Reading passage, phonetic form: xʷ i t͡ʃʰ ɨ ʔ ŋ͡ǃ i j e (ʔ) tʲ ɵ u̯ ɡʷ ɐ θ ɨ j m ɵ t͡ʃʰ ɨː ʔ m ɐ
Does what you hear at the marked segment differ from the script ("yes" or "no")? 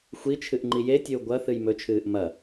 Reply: yes